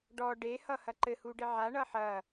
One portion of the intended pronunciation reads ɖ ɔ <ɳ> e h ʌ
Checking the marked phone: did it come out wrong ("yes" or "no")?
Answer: yes